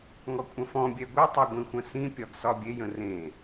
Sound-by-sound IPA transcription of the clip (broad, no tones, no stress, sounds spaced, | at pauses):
ŋ ɔ kʷʼ ə̃ f ɔ̃ bʲ ɛ ɡʷ ɛ tˤ ɛ ɡʷ ĩ xʷ ə̃ s ĩ pʲ ɒ ɡ s ɒ bʲ e j ə̃ r ẽ